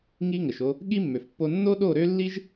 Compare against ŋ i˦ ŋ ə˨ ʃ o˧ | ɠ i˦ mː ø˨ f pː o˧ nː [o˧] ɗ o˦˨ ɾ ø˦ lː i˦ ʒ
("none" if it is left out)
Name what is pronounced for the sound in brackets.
o˦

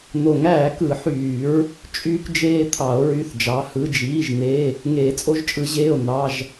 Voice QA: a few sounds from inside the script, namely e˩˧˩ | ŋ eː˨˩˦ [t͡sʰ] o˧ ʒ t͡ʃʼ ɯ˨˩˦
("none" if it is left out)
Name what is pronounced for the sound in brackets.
t͡sʼ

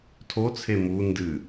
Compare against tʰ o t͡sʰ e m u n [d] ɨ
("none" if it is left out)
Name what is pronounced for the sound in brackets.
d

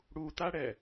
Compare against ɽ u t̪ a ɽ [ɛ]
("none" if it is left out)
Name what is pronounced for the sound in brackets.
ɛ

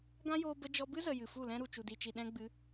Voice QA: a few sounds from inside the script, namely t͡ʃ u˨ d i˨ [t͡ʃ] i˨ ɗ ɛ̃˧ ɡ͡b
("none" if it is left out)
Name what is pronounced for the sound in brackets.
t͡ʃ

